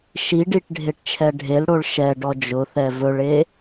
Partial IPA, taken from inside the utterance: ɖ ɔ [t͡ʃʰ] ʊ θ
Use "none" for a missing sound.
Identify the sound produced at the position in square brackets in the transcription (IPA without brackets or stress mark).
d͡ʒ